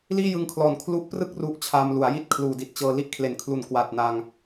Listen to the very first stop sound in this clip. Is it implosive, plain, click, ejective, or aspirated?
aspirated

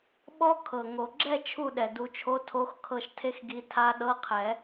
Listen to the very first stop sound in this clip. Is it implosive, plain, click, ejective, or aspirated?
implosive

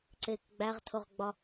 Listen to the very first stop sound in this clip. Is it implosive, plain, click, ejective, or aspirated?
click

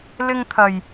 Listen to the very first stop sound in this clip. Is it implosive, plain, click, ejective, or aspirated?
aspirated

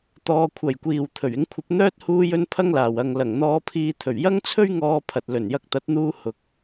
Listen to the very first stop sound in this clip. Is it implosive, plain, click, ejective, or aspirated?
plain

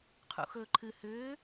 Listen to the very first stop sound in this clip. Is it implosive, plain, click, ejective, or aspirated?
aspirated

